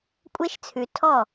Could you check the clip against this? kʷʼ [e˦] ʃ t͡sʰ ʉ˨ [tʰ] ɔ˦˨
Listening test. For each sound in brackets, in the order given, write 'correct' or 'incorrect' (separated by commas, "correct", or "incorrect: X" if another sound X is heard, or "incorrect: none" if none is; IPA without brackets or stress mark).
correct, correct